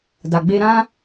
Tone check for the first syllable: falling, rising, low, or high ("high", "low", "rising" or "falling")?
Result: low